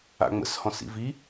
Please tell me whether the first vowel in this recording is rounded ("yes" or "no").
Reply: no